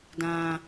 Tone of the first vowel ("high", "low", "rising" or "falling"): low